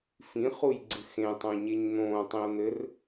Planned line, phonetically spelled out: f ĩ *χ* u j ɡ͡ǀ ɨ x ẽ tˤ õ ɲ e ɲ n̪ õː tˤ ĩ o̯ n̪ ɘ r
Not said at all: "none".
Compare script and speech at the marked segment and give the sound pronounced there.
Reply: χ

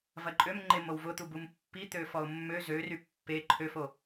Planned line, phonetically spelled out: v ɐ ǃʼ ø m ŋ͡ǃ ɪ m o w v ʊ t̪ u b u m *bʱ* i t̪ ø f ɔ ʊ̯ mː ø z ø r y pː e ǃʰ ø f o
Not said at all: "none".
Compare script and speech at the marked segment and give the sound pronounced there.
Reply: pː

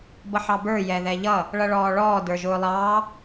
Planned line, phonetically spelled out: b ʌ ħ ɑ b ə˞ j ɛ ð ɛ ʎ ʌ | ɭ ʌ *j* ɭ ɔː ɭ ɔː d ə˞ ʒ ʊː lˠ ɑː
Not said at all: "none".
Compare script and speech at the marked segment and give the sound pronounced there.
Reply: none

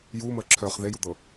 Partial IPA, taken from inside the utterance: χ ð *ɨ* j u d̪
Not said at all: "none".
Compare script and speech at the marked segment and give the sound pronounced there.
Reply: e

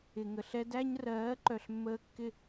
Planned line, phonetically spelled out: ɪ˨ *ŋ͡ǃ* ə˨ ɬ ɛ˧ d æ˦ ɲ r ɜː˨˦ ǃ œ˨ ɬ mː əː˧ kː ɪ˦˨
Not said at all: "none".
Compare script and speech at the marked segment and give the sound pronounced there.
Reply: ŋ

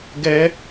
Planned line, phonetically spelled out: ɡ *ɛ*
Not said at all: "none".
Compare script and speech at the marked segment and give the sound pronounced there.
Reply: ɛ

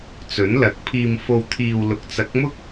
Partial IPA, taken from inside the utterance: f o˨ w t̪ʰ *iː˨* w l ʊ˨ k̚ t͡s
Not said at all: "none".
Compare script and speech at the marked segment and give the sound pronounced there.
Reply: iː˨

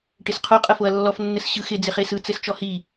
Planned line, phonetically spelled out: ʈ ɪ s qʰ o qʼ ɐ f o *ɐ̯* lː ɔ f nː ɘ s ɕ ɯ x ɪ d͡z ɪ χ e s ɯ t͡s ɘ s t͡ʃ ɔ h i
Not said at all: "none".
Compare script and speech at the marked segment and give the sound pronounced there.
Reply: ɐ̯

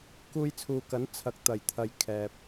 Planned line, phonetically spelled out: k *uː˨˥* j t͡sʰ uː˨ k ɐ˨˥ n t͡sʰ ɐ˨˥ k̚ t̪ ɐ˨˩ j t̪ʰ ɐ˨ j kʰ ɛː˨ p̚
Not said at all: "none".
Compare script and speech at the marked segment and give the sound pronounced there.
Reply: uː˧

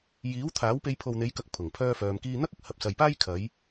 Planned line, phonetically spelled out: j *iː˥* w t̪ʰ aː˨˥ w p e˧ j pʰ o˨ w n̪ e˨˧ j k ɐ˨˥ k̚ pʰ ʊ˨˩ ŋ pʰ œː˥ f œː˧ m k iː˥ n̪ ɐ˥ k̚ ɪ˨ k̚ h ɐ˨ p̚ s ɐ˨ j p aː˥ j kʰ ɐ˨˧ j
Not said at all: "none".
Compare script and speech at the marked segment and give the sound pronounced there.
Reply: iː˨˥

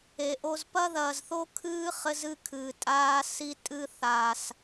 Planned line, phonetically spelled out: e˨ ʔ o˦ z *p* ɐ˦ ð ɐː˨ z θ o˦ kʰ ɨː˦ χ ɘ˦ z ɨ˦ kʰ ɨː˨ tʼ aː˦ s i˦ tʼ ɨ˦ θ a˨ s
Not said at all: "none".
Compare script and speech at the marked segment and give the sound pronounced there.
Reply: p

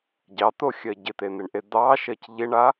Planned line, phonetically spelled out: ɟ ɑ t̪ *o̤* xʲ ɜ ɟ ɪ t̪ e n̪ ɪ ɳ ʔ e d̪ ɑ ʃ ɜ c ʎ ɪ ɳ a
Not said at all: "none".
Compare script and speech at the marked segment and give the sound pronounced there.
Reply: o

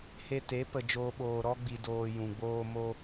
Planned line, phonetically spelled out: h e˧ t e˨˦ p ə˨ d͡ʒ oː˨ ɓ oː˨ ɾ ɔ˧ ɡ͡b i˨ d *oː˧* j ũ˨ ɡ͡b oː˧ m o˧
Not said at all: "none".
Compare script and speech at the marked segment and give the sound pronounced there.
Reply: oː˨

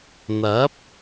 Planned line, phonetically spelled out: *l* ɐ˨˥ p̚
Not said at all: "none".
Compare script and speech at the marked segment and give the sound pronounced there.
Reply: n̪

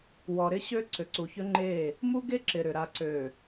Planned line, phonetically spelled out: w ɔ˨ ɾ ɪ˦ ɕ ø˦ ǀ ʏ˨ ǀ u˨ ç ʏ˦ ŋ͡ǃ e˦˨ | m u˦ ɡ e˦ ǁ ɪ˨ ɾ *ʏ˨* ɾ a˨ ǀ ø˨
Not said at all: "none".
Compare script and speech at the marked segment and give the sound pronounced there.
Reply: ʏ˨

